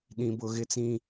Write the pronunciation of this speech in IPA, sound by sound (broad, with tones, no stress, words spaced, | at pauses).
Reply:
ɗĩ˨bʊ˨ɣɪ˦t͡sĩ˦